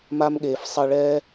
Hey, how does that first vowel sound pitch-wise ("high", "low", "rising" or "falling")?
high